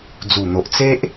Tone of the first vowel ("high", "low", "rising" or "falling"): low